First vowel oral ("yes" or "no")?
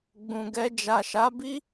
no